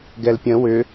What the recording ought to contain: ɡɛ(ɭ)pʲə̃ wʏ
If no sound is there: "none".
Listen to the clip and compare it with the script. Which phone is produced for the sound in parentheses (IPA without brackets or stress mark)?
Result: l